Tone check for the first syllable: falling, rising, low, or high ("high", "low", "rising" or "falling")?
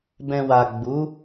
low